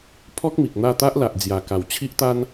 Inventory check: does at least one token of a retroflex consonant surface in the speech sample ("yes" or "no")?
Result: no